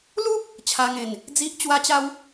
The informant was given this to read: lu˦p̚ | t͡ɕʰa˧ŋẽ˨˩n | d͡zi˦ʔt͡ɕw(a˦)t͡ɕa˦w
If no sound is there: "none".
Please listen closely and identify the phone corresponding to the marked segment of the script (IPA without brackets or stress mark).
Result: a˦